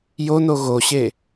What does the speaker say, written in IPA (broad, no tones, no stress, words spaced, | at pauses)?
jono ɣoɕe